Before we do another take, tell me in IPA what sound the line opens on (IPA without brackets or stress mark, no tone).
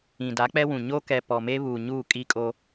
ĩ